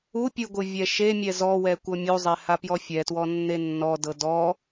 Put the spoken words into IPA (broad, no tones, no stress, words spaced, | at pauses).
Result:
upʲɯ ɡʷɯvʲɛʃemʲɛ zɔwɛ kʷɤmʲuzˤe hapjɔfʲɛtwɔ nːenːɔdɤ dɔ